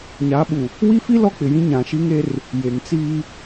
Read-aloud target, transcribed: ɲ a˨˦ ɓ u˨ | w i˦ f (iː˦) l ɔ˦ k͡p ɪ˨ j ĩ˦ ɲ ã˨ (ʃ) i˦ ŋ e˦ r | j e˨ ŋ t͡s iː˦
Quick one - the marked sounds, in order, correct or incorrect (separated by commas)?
incorrect, correct